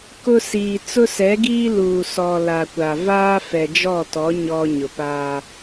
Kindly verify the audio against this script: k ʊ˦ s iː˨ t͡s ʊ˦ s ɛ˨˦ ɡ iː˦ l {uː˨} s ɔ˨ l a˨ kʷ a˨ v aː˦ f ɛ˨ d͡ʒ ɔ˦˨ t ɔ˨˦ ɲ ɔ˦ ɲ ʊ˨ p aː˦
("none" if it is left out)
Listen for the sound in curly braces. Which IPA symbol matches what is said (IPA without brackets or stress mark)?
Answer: uː˨